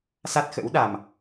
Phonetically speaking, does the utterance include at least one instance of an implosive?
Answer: yes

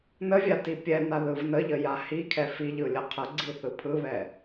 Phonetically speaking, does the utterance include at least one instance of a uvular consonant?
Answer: yes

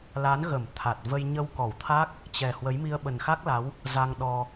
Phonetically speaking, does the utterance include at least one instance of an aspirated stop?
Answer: yes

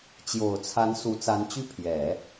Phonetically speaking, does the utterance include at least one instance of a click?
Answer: no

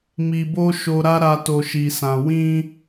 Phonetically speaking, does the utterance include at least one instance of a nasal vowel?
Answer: yes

